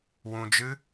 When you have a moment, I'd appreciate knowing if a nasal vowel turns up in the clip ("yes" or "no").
yes